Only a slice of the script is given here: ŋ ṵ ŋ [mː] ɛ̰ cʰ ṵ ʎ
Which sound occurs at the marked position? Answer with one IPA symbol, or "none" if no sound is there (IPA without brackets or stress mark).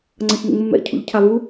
mː